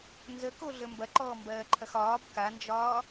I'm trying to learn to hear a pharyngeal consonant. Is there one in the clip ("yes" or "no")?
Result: no